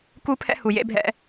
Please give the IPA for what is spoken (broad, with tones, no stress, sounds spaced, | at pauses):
k u˦ pʰ ɛ̰˦ h u˨ j ḛ˦ bʱ ɛ̰˦